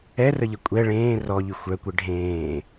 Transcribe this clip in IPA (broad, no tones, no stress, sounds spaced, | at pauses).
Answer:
ɛ r ə ʎ ə kʷʼ ɛ ɭ ẽː r ɔ ʎ y xʷ œ kʷ ɛ ɖʱ ẽː